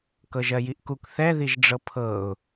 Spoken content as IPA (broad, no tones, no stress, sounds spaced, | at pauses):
k ɤ ʒ ɜ j i ʔ k u k θ ɛ ð i ʒ ɖ͡ʐ ɤ pʰ ɤ ʊ̯